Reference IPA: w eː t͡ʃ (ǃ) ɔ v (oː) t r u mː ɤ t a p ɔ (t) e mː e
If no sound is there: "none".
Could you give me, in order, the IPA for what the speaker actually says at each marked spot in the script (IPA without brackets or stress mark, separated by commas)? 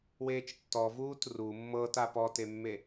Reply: tː, uː, t